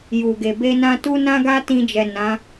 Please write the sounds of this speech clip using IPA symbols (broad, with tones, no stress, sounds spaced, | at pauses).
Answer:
j u˨ ɡ e˨ b e˧ n ã˧ t u˦ n ã˦ ɡ a˦ t ĩ˧ d͡ʒ ɛ˨ n ã˨˦